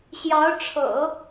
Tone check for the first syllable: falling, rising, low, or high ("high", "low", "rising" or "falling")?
rising